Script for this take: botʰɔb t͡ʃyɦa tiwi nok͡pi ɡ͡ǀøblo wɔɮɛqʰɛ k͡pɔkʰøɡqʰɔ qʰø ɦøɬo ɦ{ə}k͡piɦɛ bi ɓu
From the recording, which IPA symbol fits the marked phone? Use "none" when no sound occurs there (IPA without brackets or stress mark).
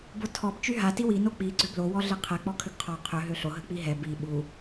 ə